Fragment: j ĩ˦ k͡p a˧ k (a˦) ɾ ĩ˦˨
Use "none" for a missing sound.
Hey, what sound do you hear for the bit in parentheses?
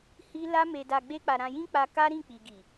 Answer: a˦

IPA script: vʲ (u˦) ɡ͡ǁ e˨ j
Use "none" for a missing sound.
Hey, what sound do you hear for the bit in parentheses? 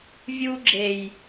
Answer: u˦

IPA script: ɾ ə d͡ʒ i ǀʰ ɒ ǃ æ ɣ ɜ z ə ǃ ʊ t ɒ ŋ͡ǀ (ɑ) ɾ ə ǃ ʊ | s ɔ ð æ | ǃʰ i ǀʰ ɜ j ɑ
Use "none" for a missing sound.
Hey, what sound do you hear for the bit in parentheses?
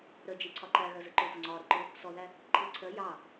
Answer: ɒ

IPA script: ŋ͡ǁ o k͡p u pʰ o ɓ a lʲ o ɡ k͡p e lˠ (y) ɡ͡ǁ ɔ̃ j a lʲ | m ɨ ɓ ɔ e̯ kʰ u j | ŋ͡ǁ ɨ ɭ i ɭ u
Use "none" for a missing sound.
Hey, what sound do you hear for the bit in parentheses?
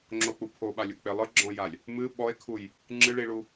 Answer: ɨ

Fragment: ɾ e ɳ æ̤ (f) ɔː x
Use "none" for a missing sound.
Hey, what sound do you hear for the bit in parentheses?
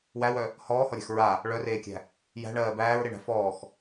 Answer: f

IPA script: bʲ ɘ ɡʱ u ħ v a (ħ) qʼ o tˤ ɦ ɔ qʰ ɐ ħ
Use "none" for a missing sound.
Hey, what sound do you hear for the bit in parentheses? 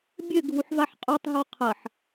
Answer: ħ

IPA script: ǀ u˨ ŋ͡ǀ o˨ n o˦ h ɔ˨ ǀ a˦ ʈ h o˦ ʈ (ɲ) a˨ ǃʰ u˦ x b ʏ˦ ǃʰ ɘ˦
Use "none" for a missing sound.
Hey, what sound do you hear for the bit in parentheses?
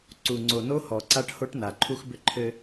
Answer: n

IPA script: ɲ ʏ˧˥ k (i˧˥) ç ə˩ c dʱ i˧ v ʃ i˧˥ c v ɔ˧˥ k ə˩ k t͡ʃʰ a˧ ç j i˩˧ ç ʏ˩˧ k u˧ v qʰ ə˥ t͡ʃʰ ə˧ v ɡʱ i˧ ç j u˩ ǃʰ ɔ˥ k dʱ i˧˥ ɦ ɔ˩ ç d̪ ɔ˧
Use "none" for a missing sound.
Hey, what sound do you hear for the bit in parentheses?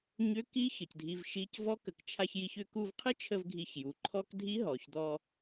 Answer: i˧˥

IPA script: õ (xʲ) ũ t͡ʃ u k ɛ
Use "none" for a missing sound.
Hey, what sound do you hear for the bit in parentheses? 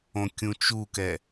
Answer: kʲ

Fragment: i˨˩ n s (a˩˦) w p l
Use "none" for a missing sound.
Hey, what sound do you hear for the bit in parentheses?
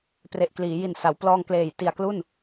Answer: a˩˦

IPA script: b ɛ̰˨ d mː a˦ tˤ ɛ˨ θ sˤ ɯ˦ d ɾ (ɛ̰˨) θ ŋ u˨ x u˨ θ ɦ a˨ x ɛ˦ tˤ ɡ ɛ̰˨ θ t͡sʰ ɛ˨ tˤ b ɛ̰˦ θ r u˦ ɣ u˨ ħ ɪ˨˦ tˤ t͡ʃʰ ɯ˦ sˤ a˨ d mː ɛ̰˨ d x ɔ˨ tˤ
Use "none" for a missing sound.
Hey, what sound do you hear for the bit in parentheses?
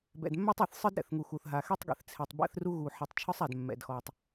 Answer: ɛ̰˨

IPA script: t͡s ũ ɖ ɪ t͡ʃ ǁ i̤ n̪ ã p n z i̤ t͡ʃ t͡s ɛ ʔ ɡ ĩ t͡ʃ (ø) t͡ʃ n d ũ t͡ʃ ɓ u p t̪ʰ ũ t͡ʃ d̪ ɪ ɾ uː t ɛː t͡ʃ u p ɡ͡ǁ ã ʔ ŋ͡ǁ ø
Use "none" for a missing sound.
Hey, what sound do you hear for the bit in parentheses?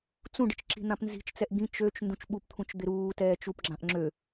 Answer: ø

